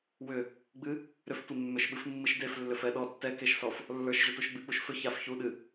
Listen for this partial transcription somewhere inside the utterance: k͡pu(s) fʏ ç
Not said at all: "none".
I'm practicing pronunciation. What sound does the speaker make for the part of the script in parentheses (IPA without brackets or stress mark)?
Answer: ʃ